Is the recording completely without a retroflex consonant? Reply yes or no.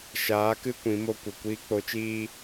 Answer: yes